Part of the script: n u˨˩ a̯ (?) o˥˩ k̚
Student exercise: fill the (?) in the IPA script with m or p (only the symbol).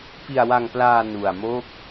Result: m